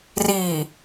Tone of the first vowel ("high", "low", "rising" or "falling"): low